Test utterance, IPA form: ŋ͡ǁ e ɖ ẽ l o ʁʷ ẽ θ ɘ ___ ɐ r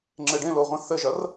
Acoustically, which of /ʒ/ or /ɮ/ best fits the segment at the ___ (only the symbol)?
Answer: ʒ